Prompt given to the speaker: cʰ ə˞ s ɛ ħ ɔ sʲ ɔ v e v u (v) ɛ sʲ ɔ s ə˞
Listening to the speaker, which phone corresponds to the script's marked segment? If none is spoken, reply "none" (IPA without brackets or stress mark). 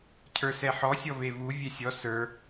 vʲ